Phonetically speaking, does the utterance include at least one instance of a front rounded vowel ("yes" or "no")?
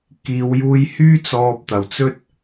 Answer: yes